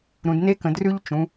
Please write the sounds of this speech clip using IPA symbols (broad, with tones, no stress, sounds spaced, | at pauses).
ɾ ũ˩˧ d n e˦˥ k ə̃˩˧ d r ʉ˦˥ ʎ t͡ʃ ũ˩˧